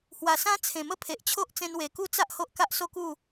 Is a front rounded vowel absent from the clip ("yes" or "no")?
yes